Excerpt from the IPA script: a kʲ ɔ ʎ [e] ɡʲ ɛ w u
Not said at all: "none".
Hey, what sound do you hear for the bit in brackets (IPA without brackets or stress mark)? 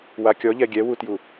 ɛ